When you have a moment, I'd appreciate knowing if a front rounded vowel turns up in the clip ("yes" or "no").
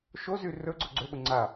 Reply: yes